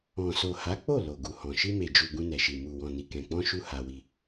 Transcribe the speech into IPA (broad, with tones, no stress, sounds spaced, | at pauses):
ɔ̃˨ s o˨ h a˨˦ k͡p o˦˨ l o˨ ɡ u˨ h ɔ̃˨ ʃ i˧ m e˨ d͡ʒ u˨ ɡ ũ˧ n ɛ˨ ʃ i˨ m u˨ w ɔ̃˨ n i˨ k ɛ̃˨ k͡p ɔ̃˧ ʃ u˦ h a˧ w i˧